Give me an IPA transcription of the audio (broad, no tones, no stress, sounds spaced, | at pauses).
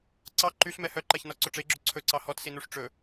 ǀ ɑ ǃ y ɬ m ɛ h œ ǃ æ ç n ɔ ǀ ɵ ʈ͡ʂ e ɡ͡ǁ ɵ ǀʰ ɵ ǀ ɑ h ɔ t s i n u ʂ ʈ͡ʂ ɵ